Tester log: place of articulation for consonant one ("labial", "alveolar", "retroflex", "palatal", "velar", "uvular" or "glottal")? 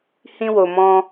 glottal